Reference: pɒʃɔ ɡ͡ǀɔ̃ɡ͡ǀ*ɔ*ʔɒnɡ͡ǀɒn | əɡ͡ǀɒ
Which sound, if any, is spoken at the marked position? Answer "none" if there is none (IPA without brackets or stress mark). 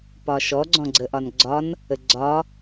ə